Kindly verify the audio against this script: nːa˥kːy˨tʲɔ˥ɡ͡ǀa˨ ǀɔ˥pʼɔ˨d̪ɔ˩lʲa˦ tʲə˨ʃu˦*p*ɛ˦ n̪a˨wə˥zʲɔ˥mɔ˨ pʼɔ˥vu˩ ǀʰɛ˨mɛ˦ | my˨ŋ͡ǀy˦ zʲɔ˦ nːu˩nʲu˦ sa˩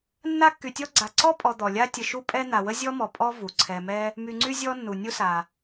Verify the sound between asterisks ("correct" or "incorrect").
incorrect